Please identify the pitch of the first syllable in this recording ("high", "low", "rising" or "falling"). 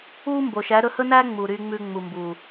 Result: high